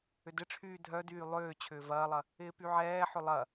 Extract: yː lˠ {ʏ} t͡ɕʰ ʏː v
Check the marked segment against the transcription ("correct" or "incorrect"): incorrect